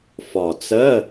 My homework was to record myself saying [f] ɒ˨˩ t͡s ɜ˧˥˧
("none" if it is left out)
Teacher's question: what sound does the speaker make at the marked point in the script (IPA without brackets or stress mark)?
f